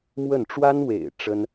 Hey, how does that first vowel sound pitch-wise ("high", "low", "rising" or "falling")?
falling